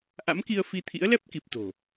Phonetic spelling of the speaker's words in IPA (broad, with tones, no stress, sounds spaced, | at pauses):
ʔ a̰˧˥ m k i˧ ə̯ f i˧ t̪ʰ ḭ˧˥ ə̯ l ɛ˦˥ p̚ k i˨˩ p̚ t̪ o̤˨˩